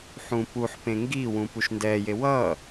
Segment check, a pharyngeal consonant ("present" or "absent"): present